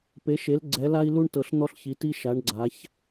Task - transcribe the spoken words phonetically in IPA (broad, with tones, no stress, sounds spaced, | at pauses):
p e˨˦ ʃ e˨˦ l ɡ͡ǀ ɛ˨˦ l a˥ i̯ l u˥ ɳ t ɤ˨˦ ɬ n̪ ɔ˥ ɬ ç i˨˦ t i˥ ʃ a˨˦ ɳ ɡ͡ǀ a˨˦ ç